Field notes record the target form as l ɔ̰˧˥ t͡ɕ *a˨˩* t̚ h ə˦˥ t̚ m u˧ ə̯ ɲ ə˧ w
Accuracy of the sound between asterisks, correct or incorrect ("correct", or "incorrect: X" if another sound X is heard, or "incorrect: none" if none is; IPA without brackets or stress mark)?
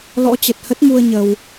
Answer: incorrect: ə˨˩